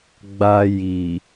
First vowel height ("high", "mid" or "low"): low